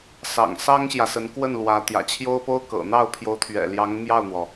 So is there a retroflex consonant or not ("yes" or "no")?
no